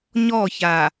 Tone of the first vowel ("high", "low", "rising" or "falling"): falling